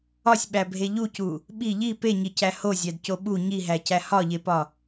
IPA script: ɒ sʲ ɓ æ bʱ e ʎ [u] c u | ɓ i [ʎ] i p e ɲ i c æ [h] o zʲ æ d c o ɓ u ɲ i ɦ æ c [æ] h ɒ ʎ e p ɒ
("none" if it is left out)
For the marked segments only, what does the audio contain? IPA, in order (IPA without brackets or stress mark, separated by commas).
u, ʎ, h, æ